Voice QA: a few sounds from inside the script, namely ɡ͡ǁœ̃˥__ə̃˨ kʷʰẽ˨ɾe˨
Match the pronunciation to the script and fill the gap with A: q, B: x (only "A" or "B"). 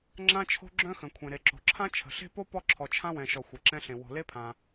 B